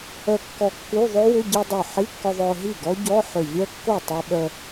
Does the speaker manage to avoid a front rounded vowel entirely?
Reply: no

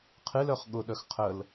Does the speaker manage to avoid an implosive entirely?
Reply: no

